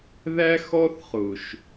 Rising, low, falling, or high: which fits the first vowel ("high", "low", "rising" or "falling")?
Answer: high